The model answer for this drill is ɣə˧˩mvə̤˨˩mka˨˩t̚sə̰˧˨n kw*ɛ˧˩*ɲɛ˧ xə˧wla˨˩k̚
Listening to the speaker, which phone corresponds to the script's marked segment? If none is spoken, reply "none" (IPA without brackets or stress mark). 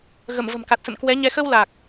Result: ɛ˨˦